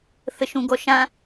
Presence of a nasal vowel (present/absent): present